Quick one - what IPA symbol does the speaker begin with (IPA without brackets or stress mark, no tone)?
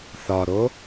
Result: θ